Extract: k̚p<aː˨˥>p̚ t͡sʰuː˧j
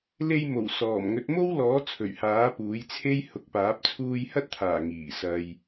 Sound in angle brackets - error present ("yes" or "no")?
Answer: no